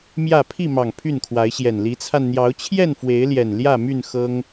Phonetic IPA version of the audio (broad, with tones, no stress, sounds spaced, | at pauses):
m j ä˥˨ pʰ i˥˨ m ɑ˨˩ ŋ pʰ y˥˨ n kʰ w a˨˦ ɪ̯ ɕ j ɛ˨˩ n l i˨˦ t͡sʰ a˧ n n̪ j ɑ˨˦ ʊ̯ t͡ɕʰ j ɛ˥˨ n f w e˨˦ ɪ̯ l j ɛ˨˩ n l j ä˥˨ m y˥˨ n x ɤ˦ ŋ